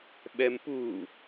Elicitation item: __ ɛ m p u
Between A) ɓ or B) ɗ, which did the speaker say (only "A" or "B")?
A